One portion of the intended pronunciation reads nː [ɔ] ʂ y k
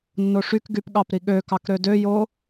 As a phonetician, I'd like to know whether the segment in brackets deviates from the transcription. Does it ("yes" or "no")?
yes